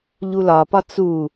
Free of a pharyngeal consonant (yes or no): yes